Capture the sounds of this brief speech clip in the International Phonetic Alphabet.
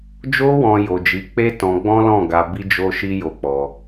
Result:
d͡ʒ o˧ w ɔ̃˨ j o˨ d͡ʒ i˨˦ k͡p e˦ t ɔ̃˧ ɡ͡b ɔ̃˦ l ɔ̃˦˨ ɡ a˧ b i˦ d͡ʒ o˦ ʃ i˦ j o˧ k͡p ɔ˧

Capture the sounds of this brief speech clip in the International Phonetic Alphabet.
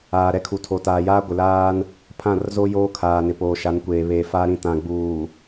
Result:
aː˨ ɾ ɛ˦ kʰ u˨ tʰ o˨ t aː˨ j aː˦ ɡʷ ɪ˨ l aː˦ n | pʰ ã˦˨ r z o˦ j oː˦ kʰ aː˨ n ɪ˨ p oː˨ ʃ a˨˦ n kʷ eː˨ β eː˨ f aː˦ ɾ ĩ˨ t ã˨ ɡ͡b uː˨

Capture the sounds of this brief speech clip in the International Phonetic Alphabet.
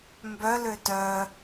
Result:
m b œ l ø t œ

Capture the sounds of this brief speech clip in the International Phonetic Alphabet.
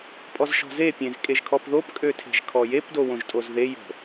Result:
pʼ ɔ z ʃ ɔ̤ z e pʲ ẽ z kʼ e ʒ kʰ ɔ p ð o p kʼ ø tʰ e̤ ʒ kʰ ɔ j e p d o w õ ʒ tʼ o z ð e j o̤

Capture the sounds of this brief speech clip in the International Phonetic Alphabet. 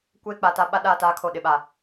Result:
kʷ eː˦ k͡p a˨ t a˦ ɓ a˦ ɗ aː˦˨ t aː˦ kʰ o˨ ɗ ɪ˨ ɓ a˨

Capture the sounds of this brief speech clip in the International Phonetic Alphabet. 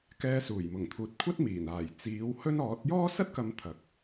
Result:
k ɛː˧ s uː˨˩ j m ʊ˨˩ ŋ t̪ʰ uː˨ t̚ kʷʰ ɐ˥ t̚ m iː˨˩ n aː˨˩ j t͡s iː˨˥ w h ɵ˥ n ɔː˨˥ t̚ j ɔː˥ s ɐ˥ t̚ k ɐ˨˧ m t̪ʰ ɐ˨˥ k̚

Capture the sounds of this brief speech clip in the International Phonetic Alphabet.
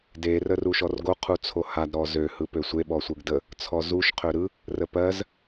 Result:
d e r ə r u ʃ ɔ r ɡ o qʰ u t͡sʰ o h a d ɾ ɔ z ø h ɯ p ø sʷ e ɓ ɔ sʷ ɯ ɡ d ə | t͡sʰ ɔ z u ʃ qʰ ø ɾ ɯ | r ə p ɜ z

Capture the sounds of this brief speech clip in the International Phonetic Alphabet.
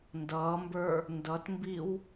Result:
n d ʌː m b ə˞ | n d ʌ t m b i w

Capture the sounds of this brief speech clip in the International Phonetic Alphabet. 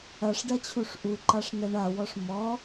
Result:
ɐ ʂ ɖ ɐ t͡ɕʰ u ʂ ʔ u ǃ a ʂ n ɛ ɳ a w ɔ ʂ m ɔ

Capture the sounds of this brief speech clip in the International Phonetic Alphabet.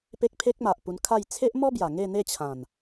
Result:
p e˦ k̚ pʰ e˦ k̚ m a˨ ʔ p u˧ n kʰ a˥˧ j t͡sʰ e˦ ʔ m ɔ˦ b j a˨˩ ŋ e˥˧ n̪ e˥˧ t͡ɕʰ ã˨˩ n

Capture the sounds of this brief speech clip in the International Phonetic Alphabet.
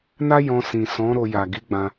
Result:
n a˦ j ɔ̃˧ s ĩ˨ s ɔ̃˨˦ ɾ o˧ j a˨ ɡ i˨˦ ɡ͡b ã˧

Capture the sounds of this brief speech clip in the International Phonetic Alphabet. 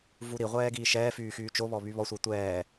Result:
v u ɾ i ʁʷ ɛː ɡ iː ʃ ɛː f yː x yː t͡ʃ o β ɔ β y β ɔ sʷ ɛ tʷ ɛː

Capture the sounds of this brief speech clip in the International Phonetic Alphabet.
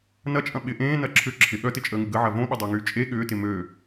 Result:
n ɐ t͡ʃʼ ɐ̃ ɓ ɪ ʔ ẽː n ɐ ǁʰ ʏ ǁʰ ɪ ɠ œ t ɪ t͡ʃʼ əː ŋ ɪ ɡ ə ʕ ɐ v õ ɓ ɪ dˤ o ŋ yː t͡ʃʼ e ɠ ʏː t ɪ m ø

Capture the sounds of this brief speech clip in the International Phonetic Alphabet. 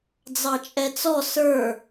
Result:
d͡z ɑ t͡ʃʼ ɛ t͡s ɔ s ə˞

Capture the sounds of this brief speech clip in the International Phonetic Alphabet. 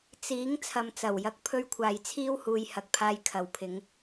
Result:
t͡s iː˨˥ ŋ t͡sʰ ɐ˨ m t͡s ɐ˨˩ w j ɐ˨˥ k̚ pʰ ɵ˧ ɥ kʷʰ aː˨ j t͡sʰ iː˥ w h uː˧ j h ɐ˨˥ k̚ pʰ aː˧ j kʰ ɐ˨ w pʰ ɪ˨˧ ŋ

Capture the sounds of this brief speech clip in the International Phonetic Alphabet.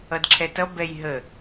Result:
ʌ d ǁʰ ɛ t ʌ b ɛ j ɦ ə

